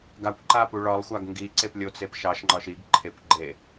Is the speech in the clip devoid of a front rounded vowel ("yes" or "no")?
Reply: yes